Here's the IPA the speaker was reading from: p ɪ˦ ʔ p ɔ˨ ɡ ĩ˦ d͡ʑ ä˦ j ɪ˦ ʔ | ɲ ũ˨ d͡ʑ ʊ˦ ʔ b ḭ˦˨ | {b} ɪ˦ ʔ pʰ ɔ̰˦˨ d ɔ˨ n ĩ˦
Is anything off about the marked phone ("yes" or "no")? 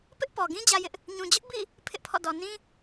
yes